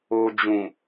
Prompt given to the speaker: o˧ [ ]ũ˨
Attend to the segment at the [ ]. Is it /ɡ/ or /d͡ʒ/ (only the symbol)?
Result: d͡ʒ